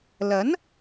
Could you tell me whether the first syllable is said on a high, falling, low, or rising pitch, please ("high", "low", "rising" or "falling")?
rising